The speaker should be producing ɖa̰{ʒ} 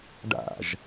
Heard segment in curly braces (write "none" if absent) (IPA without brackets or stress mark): ʒ